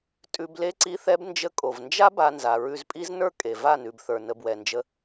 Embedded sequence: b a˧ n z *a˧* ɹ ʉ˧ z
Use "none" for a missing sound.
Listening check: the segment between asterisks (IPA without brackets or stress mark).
a˨